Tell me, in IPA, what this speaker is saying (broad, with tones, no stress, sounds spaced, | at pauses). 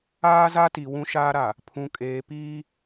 aː˦ z a˦ t i˨ w ũ˦ ʃ aː˦ ɾ a˨ | pʰ ũ˨ kʼ eː˨ p iː˦